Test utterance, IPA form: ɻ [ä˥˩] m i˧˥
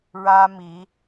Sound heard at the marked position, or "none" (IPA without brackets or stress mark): ä˥